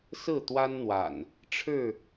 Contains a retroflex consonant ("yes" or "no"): yes